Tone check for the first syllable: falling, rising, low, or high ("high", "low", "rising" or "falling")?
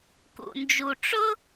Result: low